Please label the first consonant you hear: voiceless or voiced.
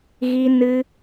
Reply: voiced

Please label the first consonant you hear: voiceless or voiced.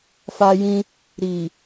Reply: voiceless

